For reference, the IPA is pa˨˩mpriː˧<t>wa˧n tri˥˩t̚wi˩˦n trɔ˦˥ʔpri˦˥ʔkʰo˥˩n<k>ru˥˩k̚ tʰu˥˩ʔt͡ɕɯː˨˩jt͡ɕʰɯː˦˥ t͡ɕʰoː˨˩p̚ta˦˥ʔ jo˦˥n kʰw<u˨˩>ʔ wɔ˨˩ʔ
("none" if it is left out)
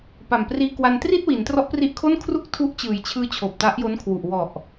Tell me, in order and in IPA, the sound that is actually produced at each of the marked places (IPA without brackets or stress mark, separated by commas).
k, kʰ, u˨˩